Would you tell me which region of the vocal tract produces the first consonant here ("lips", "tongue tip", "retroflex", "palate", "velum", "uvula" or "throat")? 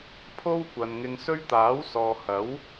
lips